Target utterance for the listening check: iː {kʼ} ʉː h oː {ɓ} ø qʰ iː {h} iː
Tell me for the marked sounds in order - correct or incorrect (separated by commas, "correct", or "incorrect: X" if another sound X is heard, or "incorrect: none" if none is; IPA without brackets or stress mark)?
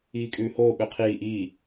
correct, correct, incorrect: ʔ